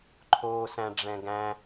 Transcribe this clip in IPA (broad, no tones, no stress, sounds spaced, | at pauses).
ǃʰ oː s æ̃ ɖ͡ʐ ɛ̃ ɡ æ̃